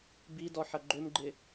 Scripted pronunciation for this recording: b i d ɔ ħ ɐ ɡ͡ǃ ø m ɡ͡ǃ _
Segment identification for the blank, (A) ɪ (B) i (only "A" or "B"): A